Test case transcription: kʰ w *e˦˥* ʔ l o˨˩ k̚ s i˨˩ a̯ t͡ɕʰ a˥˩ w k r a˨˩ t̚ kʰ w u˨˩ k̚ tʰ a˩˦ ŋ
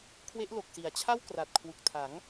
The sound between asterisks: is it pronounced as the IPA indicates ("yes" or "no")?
yes